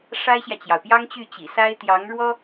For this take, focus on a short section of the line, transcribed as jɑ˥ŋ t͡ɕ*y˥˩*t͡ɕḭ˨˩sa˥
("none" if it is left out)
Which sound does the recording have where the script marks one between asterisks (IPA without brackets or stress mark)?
y˥˩